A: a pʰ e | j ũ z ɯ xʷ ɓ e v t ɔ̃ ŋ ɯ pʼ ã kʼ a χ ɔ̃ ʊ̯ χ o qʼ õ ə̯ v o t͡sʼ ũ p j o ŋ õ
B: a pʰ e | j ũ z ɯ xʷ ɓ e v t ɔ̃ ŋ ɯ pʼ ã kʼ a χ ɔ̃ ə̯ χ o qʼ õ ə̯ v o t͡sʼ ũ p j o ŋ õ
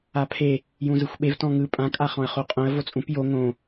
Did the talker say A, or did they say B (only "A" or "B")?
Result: B